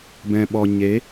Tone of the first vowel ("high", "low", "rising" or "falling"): low